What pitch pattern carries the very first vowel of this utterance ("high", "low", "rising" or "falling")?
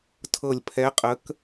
falling